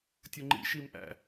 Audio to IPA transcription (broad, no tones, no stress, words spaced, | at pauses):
tʲʊŋ͡ǃḭ ʃimʔæ̰